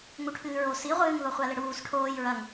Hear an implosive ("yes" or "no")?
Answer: no